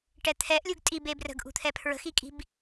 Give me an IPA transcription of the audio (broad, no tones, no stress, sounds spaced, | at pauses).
ʈ ɛ t̪ʰ ɛ ʔ lʲ u ɡ tʼ i b e b r ə̤ ɡ ʔ ṳ t̪ʰ ɛ pʰ ɹ ə̤ x i kʼ i̤ b